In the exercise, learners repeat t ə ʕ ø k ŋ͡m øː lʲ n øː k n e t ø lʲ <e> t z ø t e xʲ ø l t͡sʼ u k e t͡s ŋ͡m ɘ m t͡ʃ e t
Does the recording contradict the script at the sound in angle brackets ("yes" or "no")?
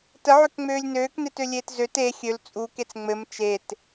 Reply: yes